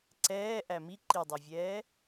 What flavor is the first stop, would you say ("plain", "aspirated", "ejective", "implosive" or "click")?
click